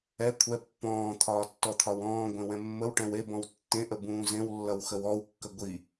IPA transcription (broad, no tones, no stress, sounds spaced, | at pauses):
ɛ kʷʰ ɛ pː ɔ̃ː t̪ʰ ɒː tː ɔ t̪ʰ ɒ w ɔ̃ː ɡʷ ẽ w ɛ̃ mː ə w ʈ ɛ̃ w e b ɔ̃ w tː ẽ ʔ ə b ũː z ẽ w lː ʌ w x ə w ɔ w kː ə ɡʷ i